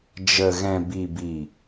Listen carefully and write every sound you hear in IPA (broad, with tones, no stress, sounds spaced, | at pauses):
d͡ʒ ə˨ ɣ ɛ̃˨ b i˨ b i˨